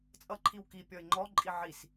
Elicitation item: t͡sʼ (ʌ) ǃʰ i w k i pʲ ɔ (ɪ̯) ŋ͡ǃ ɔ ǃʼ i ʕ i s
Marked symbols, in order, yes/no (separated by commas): yes, yes